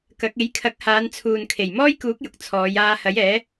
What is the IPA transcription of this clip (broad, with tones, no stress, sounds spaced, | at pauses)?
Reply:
k ɐ˨˥ k̚ e˨˥ j kʰ ɐ˨˥ k̚ h aː˨˧ n t͡sʰ uː˨ n kʰ e˨˩ j m ɔː˥ j k uː˨˥ k̚ j ʊ˨ k̚ t͡sʰ ɔː˨˧ j aː˧ h ɐ˨˥ j ɛː˨˥